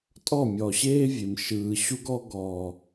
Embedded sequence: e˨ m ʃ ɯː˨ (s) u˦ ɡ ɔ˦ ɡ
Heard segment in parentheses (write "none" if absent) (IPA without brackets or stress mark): ɕ